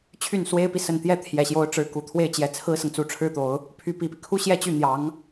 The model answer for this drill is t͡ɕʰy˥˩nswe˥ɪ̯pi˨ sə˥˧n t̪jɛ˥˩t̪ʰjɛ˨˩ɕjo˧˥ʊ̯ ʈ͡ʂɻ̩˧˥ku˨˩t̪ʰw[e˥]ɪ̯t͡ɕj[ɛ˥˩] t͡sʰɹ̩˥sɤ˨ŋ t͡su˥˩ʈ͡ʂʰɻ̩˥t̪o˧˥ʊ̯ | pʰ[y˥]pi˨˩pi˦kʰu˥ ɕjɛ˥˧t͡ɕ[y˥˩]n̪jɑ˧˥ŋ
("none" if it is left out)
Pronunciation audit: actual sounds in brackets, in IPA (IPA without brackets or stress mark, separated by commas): e˥˩, ɛ˧˥, y˧˥, y˥˩